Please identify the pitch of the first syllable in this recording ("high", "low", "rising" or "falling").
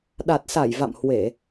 low